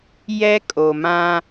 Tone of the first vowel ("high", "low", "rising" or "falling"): high